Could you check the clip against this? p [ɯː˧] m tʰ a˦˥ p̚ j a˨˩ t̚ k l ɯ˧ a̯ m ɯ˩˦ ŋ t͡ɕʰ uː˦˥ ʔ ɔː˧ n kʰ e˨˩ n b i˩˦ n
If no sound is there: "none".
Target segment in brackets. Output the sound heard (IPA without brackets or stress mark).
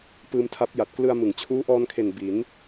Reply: ɯː˧